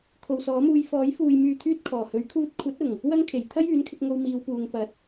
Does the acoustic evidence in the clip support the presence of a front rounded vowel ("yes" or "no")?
yes